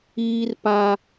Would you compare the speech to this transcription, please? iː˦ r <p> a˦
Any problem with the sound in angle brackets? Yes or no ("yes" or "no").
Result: no